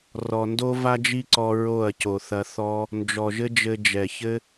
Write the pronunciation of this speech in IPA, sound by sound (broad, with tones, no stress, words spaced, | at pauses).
rɔ˨ndo˦ va˦d͡ʒi˦ǀɔ˧ ɹo˦˨ɐ̯co˨θɐ˧ θɔ˧ | nd͡ʒɔ˨ʒɘ˦d͡ʒɘ˧ d͡ʒɛ˨çɘ˦